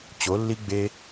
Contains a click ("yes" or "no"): no